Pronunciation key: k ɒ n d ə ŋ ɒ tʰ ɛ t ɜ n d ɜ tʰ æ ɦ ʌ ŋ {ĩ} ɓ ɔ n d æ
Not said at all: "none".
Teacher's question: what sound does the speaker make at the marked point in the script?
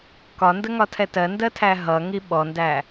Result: i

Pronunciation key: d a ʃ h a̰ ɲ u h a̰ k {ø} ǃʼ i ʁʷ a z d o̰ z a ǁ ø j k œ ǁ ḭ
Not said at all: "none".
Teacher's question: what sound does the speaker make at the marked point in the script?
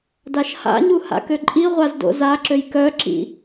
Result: ø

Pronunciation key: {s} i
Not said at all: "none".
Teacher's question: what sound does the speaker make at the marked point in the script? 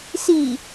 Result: s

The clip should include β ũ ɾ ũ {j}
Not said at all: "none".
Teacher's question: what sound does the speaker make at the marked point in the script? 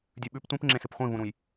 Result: j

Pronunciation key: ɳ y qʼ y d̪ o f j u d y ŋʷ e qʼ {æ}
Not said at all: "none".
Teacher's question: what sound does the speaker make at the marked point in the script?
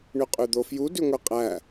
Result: æ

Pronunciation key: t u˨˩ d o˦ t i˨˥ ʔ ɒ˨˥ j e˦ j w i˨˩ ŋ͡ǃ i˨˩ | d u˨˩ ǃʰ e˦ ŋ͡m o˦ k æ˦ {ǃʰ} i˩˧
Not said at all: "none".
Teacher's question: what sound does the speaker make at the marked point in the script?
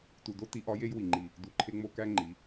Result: ŋ͡ǃ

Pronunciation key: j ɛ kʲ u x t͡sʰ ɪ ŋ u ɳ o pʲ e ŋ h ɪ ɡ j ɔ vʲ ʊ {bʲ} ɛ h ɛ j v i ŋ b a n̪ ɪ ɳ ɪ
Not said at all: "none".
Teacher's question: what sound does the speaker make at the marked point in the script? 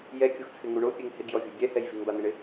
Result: bʲ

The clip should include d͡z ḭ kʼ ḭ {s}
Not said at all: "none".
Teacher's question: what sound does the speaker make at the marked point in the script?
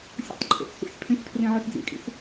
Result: s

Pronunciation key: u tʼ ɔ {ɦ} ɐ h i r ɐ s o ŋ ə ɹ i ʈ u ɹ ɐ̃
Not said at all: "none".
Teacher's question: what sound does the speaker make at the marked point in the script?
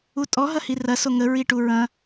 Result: ɦ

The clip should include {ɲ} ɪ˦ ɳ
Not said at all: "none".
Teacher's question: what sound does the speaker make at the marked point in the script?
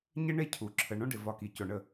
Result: ɲ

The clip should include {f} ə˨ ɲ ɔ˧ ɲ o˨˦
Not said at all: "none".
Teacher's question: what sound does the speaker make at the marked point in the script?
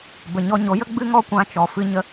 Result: b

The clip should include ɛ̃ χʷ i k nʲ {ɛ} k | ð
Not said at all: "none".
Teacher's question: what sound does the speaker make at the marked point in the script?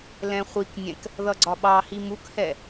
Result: ɛ̃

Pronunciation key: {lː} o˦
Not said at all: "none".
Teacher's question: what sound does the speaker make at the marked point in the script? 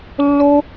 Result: lː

